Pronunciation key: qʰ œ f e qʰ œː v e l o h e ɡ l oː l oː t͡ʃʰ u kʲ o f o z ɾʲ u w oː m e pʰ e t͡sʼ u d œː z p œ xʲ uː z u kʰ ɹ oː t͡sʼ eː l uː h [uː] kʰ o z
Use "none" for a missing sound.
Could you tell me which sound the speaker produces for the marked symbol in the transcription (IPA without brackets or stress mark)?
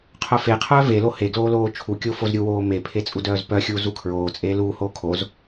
oː